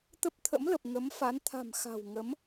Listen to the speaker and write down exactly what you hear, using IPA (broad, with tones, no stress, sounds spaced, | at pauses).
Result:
t̪ ə˦˥ p̚ t̪ʰ ə̰˧˥ m l ə˨˩ p̚ ŋ ə˨˦ m f a˨˦ n t̪ʰ a̤˨˩ m x a̤˨˩ w ŋ ə˨˦ m